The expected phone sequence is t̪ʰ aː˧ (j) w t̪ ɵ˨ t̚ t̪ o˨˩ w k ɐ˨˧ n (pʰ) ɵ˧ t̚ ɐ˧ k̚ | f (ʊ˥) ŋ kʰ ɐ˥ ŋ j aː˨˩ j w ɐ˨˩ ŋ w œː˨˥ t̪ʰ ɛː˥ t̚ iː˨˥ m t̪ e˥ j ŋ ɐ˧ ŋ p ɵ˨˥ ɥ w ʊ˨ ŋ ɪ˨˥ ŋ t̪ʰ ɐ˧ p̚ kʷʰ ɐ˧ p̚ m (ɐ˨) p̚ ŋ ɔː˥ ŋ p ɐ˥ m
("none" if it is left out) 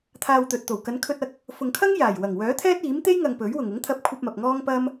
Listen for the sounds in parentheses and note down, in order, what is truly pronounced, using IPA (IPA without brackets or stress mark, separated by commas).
none, kʰ, ʊ˨, ɐ˨